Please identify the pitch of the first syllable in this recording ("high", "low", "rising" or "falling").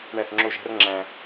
falling